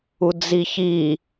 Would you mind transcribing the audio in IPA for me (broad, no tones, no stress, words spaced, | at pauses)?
ud͡ziçi